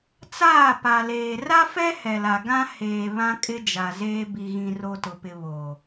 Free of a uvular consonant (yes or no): yes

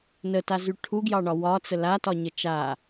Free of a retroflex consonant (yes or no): no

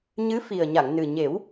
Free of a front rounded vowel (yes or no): yes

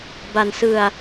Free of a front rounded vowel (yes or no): yes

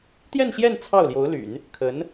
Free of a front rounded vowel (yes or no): no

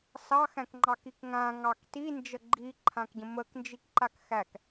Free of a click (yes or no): no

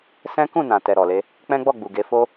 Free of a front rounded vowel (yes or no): yes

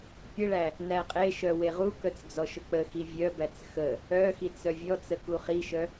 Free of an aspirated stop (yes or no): yes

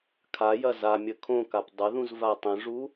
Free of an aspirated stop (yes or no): no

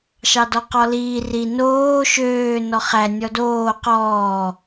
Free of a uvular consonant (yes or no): no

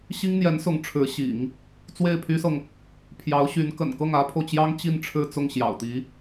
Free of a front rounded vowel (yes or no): no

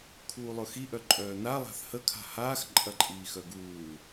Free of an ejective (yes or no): no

